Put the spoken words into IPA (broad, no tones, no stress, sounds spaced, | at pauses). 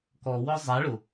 k ɔ w ɔ zˤ a ɭ ʊ